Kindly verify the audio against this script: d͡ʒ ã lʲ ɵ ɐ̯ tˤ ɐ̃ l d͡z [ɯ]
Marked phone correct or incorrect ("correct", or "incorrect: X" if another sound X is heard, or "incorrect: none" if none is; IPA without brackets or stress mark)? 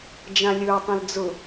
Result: incorrect: ʊ